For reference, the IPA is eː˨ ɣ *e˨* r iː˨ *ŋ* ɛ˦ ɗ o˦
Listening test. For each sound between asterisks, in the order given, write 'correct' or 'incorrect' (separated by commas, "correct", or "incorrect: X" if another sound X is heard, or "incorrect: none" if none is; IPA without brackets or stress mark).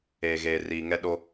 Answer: incorrect: eː˨, correct